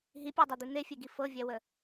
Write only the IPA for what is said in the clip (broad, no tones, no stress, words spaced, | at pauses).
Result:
ɦipʲɔdˤɤd̪i n̪efʲeɡi fɤvʲɛwə